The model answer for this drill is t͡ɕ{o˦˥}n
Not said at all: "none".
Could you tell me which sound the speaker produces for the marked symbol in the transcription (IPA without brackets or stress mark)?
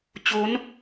o˦˥